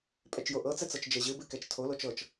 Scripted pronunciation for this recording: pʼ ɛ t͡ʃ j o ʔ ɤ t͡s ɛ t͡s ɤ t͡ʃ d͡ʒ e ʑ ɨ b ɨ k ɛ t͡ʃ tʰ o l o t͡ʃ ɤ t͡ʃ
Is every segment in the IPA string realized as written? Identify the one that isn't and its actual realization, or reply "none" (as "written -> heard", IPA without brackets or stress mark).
none